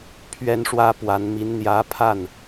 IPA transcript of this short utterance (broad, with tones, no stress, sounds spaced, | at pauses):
pʰ ɥ ɛ˥ n ʂ w ä˥ p w a˧˥ n m i˧˥ n n̪ j ä˧˥ pʰ a˥˩ n